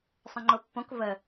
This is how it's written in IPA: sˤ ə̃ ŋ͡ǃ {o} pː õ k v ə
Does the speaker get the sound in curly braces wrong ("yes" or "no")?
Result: no